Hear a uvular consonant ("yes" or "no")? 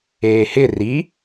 no